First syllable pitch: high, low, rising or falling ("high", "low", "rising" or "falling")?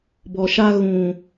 low